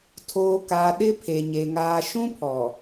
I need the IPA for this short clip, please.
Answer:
tʰoː˨ka˨ ɗɪ˦pʰe˨ɲe˨ ŋaː˨ʃũ˦pʰɔ˨

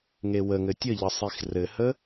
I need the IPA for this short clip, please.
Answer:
ŋewəŋɘ tʲəʎə sˤixrɘhə

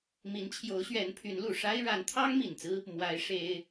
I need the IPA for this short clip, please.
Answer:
mi˧˥nt͡ɕʰjo˧˥ʊ̯ɕɥɛ˧˥n pʰy˧˥nlu˨˩ ʂa˥ɪ̯ ɻa˧˥nt̪ʰɑ˥ŋ mi˨˩nt͡sɹ̩˥ | mwa˧˥ɪ̯ ʂe˥ɪ̯

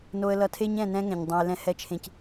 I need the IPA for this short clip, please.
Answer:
no˦ə̯lʌ˦ tʰe˦ɲɛ̃˦˨nɛ̃˦ ŋɛ̃˨ɲdˤõ˦ɪ̯ lɛ̃˦hɛ˦t͡ʃʰẽ˨c

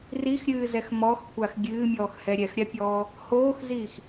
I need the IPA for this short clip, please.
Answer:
rixɾʲɨːzɛx mɔxkʷax ɡʲɨːmʲɔːxhɛ ɾʲɛxɾʲapʲɔː | hoːxziːx

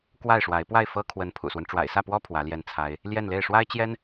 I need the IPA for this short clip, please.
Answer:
kwa˥˩ɪ̯ʂwa˧˥ɪ̯ pwa˥˩ɪ̯ fɤ˥kʰwə˧˥n pʰṵ˨˩swə˦n ʈ͡ʂwa̰˨˩ɪ̯sä˥˩pwɔ˥ pʰwä˧˥ljɛ˥˩nt͡sʰa˥ɪ̯ | ljɛ˥˧nle˥˩ɪ̯ ʂwa˥ɪ̯t͡ɕjɛ˥n

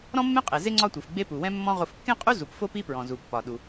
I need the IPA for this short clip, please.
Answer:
ɾɔ̃˦mːẽ˦qʼe˩ ze˥ŋ͡ǀɒ˦tʷi˩fɡ͡be˦ pu˩wɛ̃˦mːɔ̃˦ ʁo˨fkːẽ˥qʼu˥ zu˩pfo˦p i˦pɹɔ̃˩ zu˩pːɒ˩ ɗu˩

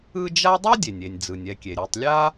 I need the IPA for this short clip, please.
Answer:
ɯ˦d͡ʒa˥ dˤo˥dʲe˩nʲe˩nʲ d͡zɯ˩nʲɛ˨kʲe˩ ɾʲo˨tˤlʲa˥

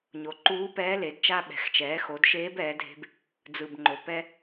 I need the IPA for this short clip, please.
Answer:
ɲo˩˧ǃuː˧˥pɛː˧˥le˩˧d t͡ʃa˧ɓɛ̤˩˧xt͡ʃɛː˩˧ xo˩˧dʃeː˧˥b ɛː˩˧dʱe̤˧b | d͡zɯ˩bŋ͡ǃo˩ pɛ˧

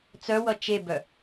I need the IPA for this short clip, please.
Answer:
t͡sœwʌ t͡ʃebœ

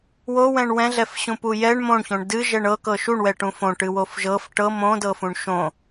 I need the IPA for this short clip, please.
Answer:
wowɛ̃ɳ wɛ̃ɮɛfɕũpu jɛɳ mõɳçõɳ dɨʒɛɳ ɤkɤ ʃuɳwɛʈũ fõʈɨwof ʒɤf ʈɤ mõdɤfũɳ ʃõ

